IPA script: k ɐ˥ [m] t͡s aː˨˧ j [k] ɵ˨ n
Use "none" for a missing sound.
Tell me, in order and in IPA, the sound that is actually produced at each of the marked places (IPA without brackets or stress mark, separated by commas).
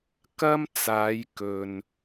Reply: m, k